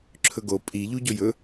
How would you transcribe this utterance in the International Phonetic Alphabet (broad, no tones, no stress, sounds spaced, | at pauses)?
ǁʰ ɵ ɡ o pʼ i ʎ u ɟ o j ɵ